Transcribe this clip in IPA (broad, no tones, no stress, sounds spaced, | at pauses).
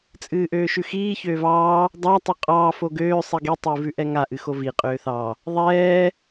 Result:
t͡sʼ ɨː ʔ øː ʃ ʉ x iː ç øː v ɑː | dˤ ɑ tˤ o qʼ ɑː f o ɡ øː sˤ i ɡ i tˤ ɨː v ʉ ʔ ɛ ŋ a ʔ ɨ x o v i qʼ øː θ ɑ | ðˤ ɛː